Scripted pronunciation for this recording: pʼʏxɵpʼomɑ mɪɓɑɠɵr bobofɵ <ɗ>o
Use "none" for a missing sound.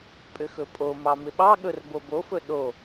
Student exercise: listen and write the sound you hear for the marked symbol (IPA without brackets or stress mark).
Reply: ɗ